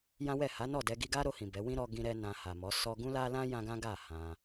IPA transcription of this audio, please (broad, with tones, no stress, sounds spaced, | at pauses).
j ã˦ w ɛ˦˨ h a˨˦ n ɔ˦˨ d ɛ˧ ɡ i˧ ɡ a˦ ɾ o˧ h ĩ˨ b ɛ˨˦ w ĩ˦ ɾ ɔ˧ ɡ ĩ˧ ɾ ɛ˧ n ã˧ h a˨ m ɔ˨˦ s ɔ˧ ɡ ũ˦ l a˦ l ã˦ j ã˦ ɡ ã˦ ɡ a˦˨ h ã˧